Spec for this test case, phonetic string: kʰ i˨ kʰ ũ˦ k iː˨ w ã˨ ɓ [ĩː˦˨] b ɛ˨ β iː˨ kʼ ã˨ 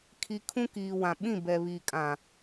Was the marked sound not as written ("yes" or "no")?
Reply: yes